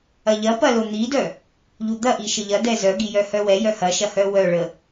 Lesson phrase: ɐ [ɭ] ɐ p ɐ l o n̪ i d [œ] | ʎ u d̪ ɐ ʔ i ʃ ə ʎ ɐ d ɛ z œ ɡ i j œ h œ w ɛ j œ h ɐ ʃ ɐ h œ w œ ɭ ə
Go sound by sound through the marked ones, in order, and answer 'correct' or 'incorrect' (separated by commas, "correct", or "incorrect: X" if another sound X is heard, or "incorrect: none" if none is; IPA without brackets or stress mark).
incorrect: ʎ, correct